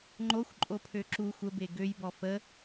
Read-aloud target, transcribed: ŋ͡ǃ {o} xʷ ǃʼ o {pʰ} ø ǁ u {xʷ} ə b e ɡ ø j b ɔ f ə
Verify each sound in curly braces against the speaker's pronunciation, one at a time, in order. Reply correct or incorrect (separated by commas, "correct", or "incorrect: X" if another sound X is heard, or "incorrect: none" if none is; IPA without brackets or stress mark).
correct, correct, correct